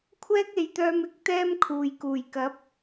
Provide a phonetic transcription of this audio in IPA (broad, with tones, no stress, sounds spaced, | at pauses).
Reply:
kʷʰ ɛː˥ k̚ e˨˧ j t̪ œː˧ m ɪ˨˥ k̚ t̪ ɛː˥ m kʰ uː˨ j k uː˨˩ j k ɐ˨˥ p̚